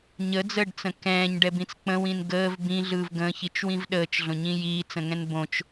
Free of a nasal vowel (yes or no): no